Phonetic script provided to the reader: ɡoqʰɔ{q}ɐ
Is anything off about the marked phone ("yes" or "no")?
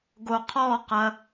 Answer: no